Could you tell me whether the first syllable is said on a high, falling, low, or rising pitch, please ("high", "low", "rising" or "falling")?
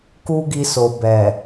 high